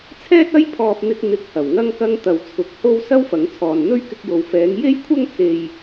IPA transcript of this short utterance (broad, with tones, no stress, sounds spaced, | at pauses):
t͡sʰ ɛː˥ t̚ ɐ˥ j pʰ ɔː˧ p̚ n̪ ɪ˧ k̚ n̪ ɪ˨ k̚ h ɐ˨˩ w ŋ ɐ˧ ŋ k ɐ˧ ŋ t̪ ɐ˨ w t͡sʰ ʊ˨˥ k̚ h o˥ w s ɐ˥ w f ɐ˨˧ ŋ t͡sʰ ɔː˨ n n̪ ɵ˥ ɥ k ɪ˧ k̚ j o˨ w f ɛː˨˧ ŋ j e˥ j kʷʰ ɐ˥ ŋ t͡s e˧ j